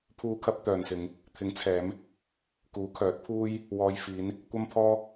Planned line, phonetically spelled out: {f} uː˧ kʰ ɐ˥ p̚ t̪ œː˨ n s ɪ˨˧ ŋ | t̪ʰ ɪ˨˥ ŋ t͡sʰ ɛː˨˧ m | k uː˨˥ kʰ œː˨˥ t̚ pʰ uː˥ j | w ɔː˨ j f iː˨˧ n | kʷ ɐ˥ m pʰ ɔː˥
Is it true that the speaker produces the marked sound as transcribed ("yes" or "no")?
no